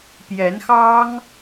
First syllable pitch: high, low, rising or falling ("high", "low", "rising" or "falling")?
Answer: rising